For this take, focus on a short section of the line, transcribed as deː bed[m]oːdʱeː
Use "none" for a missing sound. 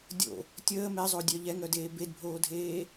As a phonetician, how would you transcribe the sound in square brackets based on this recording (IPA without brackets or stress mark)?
bʱ